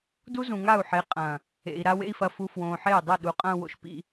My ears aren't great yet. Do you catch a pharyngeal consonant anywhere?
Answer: yes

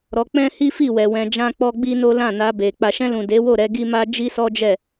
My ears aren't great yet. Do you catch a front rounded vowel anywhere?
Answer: no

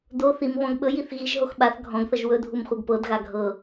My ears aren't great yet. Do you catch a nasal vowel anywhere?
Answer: yes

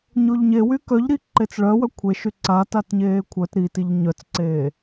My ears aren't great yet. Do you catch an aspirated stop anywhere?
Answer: yes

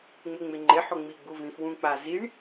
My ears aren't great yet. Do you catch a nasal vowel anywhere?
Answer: yes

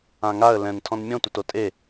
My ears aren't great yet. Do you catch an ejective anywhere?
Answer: yes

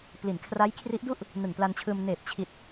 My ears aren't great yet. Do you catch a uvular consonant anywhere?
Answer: no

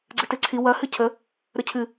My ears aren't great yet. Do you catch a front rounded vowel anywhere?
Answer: no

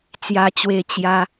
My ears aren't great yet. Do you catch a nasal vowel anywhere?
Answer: no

